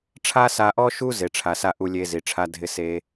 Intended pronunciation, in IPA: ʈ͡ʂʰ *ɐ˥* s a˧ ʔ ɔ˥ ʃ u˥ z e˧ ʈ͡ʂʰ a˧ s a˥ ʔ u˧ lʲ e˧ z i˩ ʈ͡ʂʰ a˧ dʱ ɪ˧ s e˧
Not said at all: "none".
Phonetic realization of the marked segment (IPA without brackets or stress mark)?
a˥